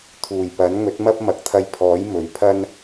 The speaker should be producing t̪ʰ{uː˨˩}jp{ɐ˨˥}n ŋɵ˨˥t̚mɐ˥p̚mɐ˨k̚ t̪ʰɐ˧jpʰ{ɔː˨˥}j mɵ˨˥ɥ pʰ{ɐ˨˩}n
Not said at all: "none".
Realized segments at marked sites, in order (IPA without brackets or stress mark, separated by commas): uː˨˩, ɐ˨˥, ɔː˨˥, ɐ˥